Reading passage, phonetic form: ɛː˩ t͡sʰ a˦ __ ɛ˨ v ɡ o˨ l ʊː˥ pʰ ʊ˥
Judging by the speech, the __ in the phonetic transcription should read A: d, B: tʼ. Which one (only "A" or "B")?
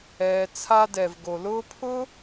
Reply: A